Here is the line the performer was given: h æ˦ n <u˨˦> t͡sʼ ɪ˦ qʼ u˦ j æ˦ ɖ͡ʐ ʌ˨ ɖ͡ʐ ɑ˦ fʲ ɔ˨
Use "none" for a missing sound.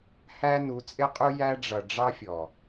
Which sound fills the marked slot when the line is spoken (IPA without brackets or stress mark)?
u˨˦